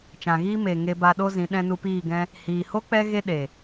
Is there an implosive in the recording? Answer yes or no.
yes